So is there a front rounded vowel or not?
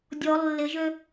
yes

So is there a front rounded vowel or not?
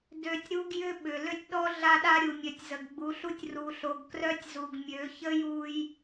yes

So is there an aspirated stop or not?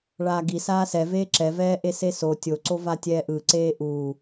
no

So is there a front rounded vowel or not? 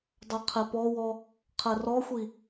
no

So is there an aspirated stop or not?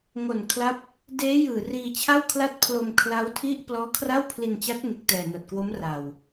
yes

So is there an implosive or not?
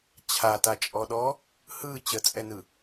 yes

